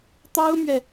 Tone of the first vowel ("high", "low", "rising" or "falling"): high